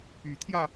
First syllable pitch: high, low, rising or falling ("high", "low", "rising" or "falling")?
rising